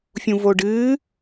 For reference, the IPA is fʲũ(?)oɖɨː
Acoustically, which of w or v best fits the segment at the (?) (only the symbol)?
v